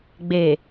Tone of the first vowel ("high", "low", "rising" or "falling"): low